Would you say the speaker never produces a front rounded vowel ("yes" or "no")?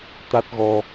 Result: yes